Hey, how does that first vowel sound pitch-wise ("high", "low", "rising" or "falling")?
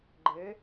rising